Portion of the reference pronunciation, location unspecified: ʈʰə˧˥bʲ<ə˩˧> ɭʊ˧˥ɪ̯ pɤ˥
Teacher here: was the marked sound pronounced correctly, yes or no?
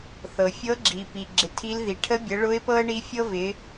yes